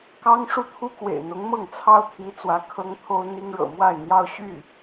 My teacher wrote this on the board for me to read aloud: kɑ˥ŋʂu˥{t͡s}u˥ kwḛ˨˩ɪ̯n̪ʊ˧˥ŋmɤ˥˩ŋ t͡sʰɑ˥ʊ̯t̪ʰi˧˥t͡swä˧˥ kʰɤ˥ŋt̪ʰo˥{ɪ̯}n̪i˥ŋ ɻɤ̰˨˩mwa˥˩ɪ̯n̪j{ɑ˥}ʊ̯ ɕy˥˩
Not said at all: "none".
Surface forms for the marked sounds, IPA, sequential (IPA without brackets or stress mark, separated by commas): t̪ʰ, ʊ̯, ɑ˥